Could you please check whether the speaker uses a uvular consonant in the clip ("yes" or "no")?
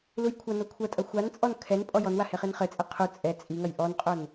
yes